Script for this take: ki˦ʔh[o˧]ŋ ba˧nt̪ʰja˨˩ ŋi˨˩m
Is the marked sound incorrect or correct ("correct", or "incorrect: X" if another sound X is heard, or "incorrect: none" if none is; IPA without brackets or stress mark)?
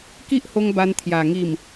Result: correct